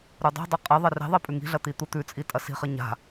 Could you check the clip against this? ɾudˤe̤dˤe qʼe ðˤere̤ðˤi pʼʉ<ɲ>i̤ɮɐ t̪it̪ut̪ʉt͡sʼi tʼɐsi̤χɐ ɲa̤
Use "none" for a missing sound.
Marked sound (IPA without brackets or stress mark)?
ŋ